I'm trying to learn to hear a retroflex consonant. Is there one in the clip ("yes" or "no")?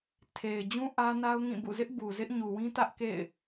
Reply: no